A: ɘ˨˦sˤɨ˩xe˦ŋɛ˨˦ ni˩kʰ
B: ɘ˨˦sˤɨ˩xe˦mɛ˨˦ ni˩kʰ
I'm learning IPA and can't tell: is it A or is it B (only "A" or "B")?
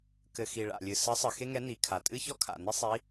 A